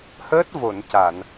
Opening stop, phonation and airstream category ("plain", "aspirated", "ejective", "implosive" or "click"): plain